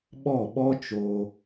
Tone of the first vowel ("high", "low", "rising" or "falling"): falling